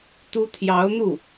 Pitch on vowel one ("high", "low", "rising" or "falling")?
high